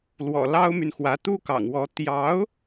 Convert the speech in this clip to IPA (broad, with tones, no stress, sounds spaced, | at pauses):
l w ɔ̰˨˩ l ɑ˥ ʊ̯ m y˨ n x w ä˧˥ t̪ u˥ k ɑ̰˨˩ ŋ w ɔ˧˥ t̪ j ɑ˧˥ ʊ̯